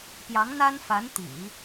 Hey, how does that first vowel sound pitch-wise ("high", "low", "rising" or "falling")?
rising